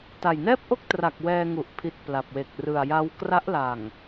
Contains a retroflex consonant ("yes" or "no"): no